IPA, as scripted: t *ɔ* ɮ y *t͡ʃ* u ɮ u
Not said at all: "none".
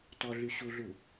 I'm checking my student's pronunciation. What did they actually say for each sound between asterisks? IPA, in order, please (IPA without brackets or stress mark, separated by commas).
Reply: ɔ, ɕ